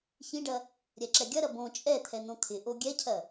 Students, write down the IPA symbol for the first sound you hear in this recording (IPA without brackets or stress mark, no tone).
ç